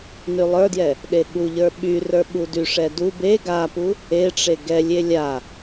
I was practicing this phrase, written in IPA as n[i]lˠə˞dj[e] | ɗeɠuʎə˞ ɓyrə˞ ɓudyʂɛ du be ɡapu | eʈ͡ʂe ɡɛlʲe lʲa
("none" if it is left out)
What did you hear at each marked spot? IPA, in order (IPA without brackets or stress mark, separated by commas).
y, ɛ